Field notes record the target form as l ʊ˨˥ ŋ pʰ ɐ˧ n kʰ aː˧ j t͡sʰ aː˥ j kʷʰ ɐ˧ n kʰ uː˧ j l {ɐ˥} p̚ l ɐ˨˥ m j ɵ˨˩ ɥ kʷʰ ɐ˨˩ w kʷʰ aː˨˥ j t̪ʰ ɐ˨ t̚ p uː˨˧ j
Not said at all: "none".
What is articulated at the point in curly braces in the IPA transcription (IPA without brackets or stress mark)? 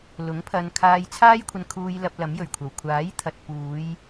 ɐ˧